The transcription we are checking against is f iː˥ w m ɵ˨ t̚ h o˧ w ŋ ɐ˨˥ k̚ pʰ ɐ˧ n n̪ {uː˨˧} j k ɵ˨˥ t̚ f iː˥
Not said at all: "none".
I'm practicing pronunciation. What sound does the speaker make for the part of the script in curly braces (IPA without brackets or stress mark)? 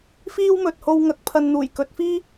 uː˨˩